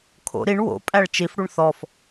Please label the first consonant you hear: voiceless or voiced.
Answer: voiceless